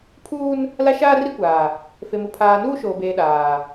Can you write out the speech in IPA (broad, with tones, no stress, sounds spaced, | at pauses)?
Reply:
pʰ uː˦ n | l a˦ ʃ aː˦ r i˦ kʷ aː˨ | f e˨ m u˨ pʰ aː˨ n uː˦ ʃ oː˨ b eː˨ ɗ aː˨